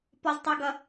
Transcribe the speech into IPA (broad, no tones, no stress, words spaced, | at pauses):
pɔztˤuɡʌ